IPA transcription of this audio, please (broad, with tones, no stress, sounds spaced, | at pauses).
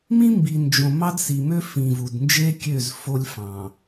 m ĩ˦ m b i˨ n d͡ʒ õ˨ m ɑ˦ d s i˨ m ø˦ f ĩ˨ v u˨ d n d͡ʒ e˦ kʲ ø˦˨ z f o˦ lʲ f ɑ̃˨